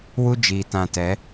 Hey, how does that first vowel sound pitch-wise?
high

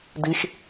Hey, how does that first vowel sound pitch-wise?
low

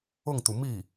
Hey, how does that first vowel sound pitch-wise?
falling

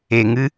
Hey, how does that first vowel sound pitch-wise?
low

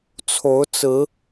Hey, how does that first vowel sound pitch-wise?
rising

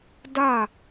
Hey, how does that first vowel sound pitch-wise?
falling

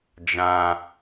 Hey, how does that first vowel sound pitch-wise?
high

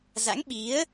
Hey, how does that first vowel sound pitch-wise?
rising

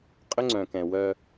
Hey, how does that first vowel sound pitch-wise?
high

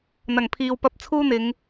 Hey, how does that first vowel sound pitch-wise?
low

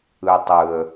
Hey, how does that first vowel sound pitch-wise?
low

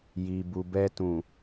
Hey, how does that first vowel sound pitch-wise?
low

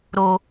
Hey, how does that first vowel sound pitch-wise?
low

